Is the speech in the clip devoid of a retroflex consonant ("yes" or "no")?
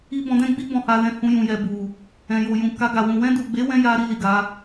yes